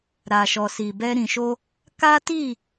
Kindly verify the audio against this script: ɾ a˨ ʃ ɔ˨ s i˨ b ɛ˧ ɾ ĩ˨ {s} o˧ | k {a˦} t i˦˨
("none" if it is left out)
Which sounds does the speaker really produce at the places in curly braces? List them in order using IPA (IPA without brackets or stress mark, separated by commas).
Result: ʃ, a˦